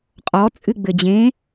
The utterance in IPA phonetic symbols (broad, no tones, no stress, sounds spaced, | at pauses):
qʼ ɔ t͡sʼ ɨ ɡ͡b ɘ d͡ʑ ẽ